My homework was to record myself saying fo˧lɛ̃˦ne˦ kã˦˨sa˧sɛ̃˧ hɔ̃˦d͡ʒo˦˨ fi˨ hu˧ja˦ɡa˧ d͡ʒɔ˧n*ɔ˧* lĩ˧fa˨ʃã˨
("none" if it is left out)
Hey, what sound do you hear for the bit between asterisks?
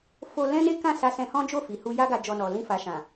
ɔ˨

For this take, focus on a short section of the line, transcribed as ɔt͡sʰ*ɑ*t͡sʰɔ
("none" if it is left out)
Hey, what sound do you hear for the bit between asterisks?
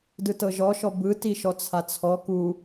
a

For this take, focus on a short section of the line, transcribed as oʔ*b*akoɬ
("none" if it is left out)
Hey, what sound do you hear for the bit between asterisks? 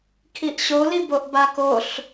b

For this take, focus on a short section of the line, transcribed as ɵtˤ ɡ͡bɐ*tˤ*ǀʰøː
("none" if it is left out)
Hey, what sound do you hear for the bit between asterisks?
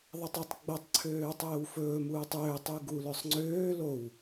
tˤ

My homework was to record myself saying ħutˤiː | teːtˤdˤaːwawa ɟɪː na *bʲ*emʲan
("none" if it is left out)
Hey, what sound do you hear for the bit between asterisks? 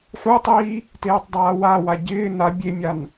bʲ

